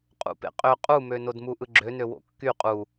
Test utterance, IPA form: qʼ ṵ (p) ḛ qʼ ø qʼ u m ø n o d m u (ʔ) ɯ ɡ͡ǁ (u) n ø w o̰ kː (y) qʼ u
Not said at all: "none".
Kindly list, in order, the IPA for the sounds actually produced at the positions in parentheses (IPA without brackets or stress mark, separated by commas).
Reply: p, ʔ, ø, y